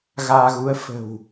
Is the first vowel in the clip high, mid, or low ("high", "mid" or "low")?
low